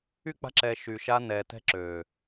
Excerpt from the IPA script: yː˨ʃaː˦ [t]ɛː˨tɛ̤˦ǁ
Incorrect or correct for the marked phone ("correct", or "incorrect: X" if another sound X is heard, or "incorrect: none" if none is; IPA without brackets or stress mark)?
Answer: incorrect: n